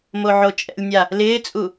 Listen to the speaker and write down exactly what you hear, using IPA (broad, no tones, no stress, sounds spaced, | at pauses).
m o ʕ o t͡ʃʼ ɛ̰ lʲ nʲ a | l ɪː t͡sʼ u